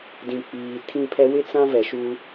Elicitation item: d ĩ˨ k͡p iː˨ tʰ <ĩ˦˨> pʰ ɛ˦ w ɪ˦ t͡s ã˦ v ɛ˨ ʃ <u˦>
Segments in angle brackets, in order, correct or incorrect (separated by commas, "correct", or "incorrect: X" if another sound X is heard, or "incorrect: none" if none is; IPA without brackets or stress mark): correct, correct